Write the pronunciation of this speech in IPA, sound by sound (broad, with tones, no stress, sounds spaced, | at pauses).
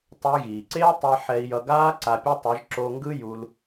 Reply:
tˤ ɛ˧ j ɣ iː˨ ǀ eː˦ tˤ ɛ˦ ħ ɛ˧ i̯ j ʌ˧ ɡ aː˦ ǀ a˧ pʲ a˦ tˤ ɯ˨˦ ʒ ǁ o˧ ŋ ɡ ɯ˦ j u˧ l